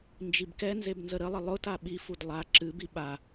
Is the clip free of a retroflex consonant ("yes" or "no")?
yes